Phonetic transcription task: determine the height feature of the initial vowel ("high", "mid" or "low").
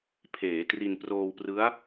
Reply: mid